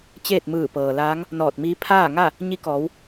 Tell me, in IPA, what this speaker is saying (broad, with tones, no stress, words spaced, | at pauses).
t͡ɕeː˥˨t̚mɯː˧˩pɤː˩laː˧˥ŋ | nɔː˧˩t̚miː˧˥ pʰaː˥˨ŋa˥˨ | ɲi˧˥kɔː˩˧w